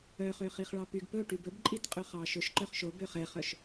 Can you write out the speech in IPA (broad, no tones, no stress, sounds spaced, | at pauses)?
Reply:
œ χ ø χ i χ ɭ ɑ p y ɡ p ɵ ʈ y b ɵ b ǃʼ i t qʼ ɵ χ ɑ ʃ ɵ ʃ ǃ œ χ ʃ o b ø χ ɛ χ œ ʃ